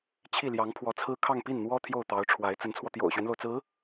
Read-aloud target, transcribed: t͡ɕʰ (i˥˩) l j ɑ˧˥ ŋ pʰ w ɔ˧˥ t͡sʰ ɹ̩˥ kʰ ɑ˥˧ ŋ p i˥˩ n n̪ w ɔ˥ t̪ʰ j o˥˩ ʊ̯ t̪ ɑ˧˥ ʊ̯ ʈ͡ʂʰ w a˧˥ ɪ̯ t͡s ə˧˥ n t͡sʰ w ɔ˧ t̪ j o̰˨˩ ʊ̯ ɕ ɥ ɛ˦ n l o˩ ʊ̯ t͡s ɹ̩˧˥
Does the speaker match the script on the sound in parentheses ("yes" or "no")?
yes